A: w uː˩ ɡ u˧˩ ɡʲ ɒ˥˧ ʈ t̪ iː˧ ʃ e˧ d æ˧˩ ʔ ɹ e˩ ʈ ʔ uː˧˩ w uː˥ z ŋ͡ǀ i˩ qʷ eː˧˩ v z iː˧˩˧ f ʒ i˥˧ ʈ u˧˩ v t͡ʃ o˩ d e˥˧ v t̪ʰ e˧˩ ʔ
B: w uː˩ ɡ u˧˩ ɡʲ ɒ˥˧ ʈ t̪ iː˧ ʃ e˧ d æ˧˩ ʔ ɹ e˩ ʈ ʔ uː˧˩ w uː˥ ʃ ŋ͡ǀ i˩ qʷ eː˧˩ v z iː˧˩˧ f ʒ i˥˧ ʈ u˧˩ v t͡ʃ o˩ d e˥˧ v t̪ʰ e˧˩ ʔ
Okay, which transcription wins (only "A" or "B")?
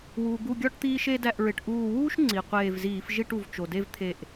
B